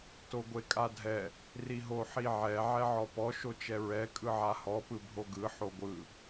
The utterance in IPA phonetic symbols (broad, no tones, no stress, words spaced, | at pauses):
toɡʷekʼadʱɛ | riɦoħiʕɛ ʕɛʕɔpɔ ʃot͡ʃɛɹɛ kʼɯʕahɔ pɯbʱoɡɯ ħoɡʷɯ